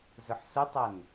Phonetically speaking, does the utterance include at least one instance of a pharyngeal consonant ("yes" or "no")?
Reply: yes